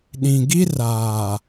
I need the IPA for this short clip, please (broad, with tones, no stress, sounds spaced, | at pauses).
ɗ ĩ˨ ɡ i˦ r aː˨